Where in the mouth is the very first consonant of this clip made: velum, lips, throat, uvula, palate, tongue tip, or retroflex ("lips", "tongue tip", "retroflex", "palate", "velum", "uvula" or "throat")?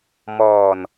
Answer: lips